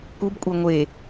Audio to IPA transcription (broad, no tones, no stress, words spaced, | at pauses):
kubkʷʼe ŋʷe